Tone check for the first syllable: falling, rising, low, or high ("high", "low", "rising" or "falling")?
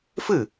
falling